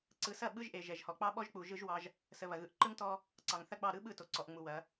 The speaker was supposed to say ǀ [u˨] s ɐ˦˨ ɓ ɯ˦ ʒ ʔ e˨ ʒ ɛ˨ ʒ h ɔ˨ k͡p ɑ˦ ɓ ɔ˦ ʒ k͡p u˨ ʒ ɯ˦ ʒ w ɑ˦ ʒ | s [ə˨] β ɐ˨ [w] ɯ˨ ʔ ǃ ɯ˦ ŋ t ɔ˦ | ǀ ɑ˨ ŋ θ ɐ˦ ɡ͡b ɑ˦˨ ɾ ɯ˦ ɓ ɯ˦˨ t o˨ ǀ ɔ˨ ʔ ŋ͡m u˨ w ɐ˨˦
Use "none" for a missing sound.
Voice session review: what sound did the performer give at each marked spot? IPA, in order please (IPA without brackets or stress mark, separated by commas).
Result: ɯ˨, ə˨, ɣ